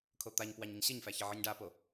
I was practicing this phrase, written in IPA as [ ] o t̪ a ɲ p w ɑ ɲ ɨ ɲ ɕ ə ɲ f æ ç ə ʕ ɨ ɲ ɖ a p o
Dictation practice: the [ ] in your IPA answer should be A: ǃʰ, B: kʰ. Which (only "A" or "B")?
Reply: B